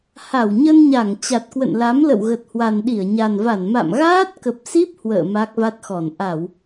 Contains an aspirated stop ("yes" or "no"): no